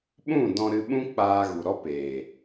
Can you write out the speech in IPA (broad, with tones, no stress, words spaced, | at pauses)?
ɓũ˦˨ dɔ̃˧ ɾɨ˧ɓũ˦ k͡paː˧ɣu˨ɾɔ˦peː˨